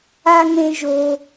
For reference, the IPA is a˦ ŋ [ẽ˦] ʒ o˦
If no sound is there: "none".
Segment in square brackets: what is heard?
ẽ˦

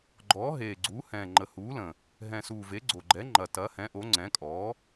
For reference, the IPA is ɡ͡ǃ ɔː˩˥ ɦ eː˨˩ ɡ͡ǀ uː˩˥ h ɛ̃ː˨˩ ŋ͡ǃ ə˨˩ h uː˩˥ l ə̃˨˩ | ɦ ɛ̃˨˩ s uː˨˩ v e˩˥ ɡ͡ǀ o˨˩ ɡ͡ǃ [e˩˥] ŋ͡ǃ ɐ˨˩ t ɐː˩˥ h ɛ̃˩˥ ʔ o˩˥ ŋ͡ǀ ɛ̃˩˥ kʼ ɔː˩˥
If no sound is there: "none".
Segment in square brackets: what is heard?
ɛ˩˥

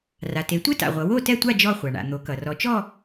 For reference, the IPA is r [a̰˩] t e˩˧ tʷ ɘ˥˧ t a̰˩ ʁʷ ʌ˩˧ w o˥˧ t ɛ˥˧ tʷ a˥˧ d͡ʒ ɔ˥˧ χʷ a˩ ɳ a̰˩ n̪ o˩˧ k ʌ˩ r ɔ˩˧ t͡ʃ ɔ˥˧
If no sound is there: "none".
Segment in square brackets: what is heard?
a˩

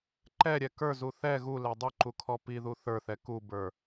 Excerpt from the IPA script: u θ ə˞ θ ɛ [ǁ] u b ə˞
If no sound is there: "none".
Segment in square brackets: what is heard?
k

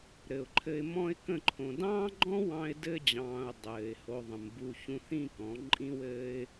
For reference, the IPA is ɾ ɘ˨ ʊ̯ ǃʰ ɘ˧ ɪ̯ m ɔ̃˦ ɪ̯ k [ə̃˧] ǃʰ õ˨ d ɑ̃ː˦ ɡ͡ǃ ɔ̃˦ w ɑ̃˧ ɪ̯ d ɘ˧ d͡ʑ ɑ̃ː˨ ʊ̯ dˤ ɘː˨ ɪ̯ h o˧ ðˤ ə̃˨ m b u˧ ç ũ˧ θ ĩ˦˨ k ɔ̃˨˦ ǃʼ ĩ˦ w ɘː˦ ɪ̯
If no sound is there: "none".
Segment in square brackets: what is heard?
ə̃˦˨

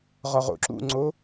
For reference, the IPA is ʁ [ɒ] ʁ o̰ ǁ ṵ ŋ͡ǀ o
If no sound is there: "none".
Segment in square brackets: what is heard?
ɒ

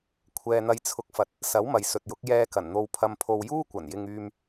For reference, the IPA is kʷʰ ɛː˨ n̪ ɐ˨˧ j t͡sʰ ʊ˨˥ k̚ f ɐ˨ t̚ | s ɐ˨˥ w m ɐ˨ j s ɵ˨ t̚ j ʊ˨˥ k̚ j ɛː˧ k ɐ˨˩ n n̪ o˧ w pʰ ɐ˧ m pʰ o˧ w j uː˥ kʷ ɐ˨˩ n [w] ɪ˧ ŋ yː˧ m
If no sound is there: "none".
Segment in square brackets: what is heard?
j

